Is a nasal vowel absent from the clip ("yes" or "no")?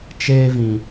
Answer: no